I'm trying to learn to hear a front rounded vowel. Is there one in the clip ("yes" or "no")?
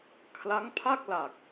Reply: no